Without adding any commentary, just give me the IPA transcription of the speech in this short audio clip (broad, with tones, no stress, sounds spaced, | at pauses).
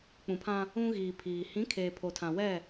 k͡p ũ˨ pʰ ã˦ | ũ˦ ɣ iː˨ pʰ iː˨ h ĩ˨˦ kʰ eː˨ pʰ o˨ tʰ ã˨ w ɛ˦˨